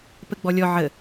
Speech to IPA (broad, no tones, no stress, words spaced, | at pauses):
pəɡ͡bɔlʲɔ ʕə